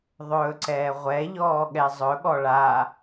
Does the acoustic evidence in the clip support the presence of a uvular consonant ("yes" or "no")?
yes